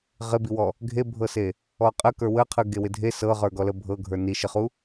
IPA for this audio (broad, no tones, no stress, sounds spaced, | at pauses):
ʁ ɪ b i w ɔ | ɡʱ e bʱ ɤ s e | ɔ qʼ ə k ə˞ w ə qʰ ɯ ɡ e w ɪ dʱ e s ɤ ʁ ə˞ ɡ ɔ l ə bʱ ɤ ɡʱ ə˞ n i ʃ ɪ χ u